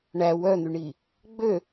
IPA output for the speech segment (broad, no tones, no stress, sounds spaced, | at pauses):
ɳ æ w œ n̪ y ɳ i | ɡ͡b ø